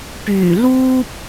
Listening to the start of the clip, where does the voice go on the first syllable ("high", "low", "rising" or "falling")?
low